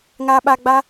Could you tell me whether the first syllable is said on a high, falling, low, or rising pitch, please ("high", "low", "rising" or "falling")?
low